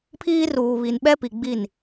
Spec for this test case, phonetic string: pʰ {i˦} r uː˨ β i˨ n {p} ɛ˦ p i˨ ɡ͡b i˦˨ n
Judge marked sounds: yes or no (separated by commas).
no, no